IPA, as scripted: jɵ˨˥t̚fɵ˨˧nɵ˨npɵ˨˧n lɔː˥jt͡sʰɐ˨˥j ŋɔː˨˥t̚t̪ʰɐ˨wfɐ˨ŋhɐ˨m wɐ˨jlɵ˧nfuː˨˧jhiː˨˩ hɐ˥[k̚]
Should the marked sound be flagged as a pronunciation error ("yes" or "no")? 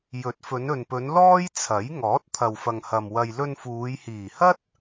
yes